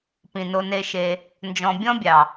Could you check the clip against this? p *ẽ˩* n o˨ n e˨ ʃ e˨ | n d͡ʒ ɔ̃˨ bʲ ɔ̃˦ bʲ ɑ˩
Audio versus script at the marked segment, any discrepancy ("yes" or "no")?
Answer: yes